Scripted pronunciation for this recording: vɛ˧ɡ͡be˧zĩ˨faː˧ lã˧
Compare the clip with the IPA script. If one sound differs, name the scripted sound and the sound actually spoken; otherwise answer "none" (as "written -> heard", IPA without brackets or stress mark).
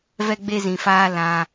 none